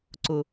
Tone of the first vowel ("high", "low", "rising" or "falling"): low